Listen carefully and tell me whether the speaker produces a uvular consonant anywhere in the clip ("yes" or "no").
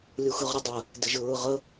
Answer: yes